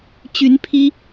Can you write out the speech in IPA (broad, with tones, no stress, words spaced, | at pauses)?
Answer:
t͡ɕy˧˥n pʰi˥